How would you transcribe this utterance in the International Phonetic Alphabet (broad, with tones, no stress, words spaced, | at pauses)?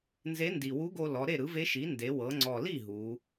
nze˧˥ndi˨˩ wu˧˥ɡo˧lɔ˩˧ ɾe˥˩ɾɯ˩˥ve˧˥ʃi˩˥ nde˩˧wɤ˩˧ŋ͡ǀɔ˨˩li˥˩ ɦu˩˧